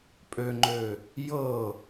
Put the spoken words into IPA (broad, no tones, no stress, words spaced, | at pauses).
pʼøŋ͡ǃø | jɤ